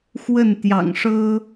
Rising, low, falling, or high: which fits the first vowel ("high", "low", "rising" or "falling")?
falling